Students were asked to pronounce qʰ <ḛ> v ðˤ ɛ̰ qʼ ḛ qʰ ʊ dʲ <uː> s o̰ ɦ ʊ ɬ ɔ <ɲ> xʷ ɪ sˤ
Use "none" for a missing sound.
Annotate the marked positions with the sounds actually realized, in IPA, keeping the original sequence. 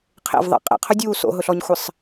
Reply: ḛ, uː, ɲ

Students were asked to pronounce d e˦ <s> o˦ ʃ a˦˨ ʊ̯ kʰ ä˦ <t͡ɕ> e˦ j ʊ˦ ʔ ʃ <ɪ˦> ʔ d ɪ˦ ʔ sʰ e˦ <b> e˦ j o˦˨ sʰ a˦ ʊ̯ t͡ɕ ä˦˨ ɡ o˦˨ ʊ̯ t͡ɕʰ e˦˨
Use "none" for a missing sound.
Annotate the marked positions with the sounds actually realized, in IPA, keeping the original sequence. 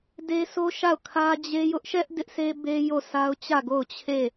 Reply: s, d͡ʑ, ɛ˦, b

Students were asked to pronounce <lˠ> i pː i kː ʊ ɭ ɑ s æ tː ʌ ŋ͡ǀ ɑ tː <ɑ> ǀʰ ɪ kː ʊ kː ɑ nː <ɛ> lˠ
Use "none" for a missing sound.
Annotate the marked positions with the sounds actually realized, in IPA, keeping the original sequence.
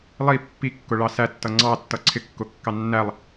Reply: lˠ, ʌ, æ

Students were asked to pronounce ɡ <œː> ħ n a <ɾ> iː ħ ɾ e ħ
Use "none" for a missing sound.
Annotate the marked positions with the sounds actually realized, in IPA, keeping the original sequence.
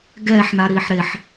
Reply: ɛː, ɾ

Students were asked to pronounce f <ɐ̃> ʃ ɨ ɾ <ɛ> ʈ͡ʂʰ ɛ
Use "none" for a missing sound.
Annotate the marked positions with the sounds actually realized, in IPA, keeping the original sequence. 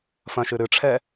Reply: ɐ̃, ɨ

